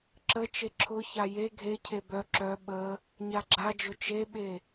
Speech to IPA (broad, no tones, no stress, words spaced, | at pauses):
ǁə t͡ʃeǁʰʊça je ɡʱecʰe bœ ǁœ ɓə | ɲaɡ͡ǁad͡ʒʊ t͡ʃeɓe